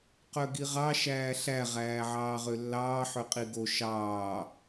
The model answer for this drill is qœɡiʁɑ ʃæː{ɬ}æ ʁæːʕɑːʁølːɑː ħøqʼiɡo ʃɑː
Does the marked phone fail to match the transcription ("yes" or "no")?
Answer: no